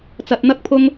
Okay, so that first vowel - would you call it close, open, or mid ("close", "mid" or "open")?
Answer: open